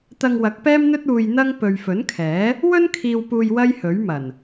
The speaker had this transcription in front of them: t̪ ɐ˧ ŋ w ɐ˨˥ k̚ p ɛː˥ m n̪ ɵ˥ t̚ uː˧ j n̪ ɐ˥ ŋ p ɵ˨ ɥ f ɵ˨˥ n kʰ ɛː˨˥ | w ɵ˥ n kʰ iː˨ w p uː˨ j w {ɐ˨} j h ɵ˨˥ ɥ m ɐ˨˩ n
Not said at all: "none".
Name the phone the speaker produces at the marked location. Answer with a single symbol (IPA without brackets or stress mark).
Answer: ɐ˥